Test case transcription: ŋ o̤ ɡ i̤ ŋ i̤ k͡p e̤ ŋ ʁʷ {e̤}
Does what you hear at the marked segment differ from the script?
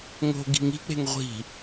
yes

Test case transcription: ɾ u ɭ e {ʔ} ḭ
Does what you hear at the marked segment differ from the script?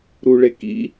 yes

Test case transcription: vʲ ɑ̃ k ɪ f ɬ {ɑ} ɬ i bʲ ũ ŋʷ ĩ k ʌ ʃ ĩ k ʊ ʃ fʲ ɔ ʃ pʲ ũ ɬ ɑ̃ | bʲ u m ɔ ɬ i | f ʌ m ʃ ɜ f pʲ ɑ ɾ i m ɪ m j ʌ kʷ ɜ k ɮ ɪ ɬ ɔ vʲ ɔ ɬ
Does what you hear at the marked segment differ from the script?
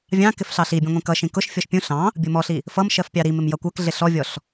no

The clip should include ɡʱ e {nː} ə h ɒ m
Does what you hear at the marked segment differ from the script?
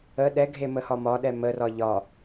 yes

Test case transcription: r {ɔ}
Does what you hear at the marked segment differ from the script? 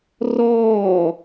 yes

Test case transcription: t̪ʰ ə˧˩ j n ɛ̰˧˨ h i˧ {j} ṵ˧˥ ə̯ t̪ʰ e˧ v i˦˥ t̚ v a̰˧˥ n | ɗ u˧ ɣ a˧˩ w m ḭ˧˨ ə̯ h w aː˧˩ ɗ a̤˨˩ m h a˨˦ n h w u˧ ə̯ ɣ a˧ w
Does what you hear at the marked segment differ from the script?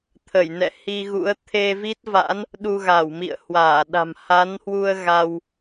yes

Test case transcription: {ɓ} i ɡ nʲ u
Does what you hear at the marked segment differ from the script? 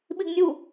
no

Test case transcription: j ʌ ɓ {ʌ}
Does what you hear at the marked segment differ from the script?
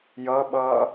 yes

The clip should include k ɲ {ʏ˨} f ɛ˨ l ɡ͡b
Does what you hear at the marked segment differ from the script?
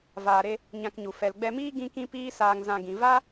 yes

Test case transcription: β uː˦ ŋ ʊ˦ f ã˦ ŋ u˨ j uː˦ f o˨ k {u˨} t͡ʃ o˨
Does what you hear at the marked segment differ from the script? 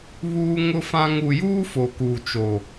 yes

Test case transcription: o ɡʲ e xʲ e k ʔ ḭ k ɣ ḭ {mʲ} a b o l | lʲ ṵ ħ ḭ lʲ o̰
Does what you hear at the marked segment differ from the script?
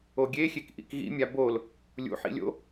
no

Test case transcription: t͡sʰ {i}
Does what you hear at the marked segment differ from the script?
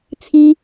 no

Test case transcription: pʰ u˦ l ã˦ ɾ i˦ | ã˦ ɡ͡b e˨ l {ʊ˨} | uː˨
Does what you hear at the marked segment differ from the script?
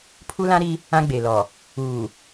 yes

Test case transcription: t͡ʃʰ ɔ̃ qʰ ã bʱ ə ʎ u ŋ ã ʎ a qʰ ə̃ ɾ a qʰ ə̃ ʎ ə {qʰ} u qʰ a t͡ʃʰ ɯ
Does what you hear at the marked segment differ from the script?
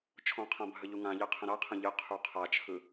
no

